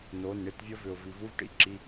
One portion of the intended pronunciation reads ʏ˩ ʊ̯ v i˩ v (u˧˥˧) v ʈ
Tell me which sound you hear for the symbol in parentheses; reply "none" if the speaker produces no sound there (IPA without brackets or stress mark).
u˧˥˧